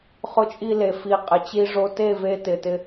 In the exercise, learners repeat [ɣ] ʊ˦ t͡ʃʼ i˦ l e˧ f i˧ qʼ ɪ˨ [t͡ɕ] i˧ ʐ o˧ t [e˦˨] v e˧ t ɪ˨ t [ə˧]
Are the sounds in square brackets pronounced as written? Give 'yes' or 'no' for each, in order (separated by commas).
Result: no, yes, yes, no